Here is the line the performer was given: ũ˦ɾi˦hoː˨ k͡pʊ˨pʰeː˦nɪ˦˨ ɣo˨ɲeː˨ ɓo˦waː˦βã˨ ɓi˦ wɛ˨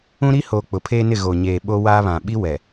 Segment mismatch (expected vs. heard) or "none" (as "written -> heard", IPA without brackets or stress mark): none